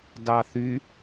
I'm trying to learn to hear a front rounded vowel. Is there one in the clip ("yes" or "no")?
yes